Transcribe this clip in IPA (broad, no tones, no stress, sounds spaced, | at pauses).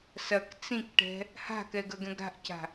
s ɐ k t͡s ĩ k ʈ ɛ̤ | h a̤ k ɛ ɡ ɐ ɡ ɛ̃ ɡ ɾ a̤ ʔ c a̤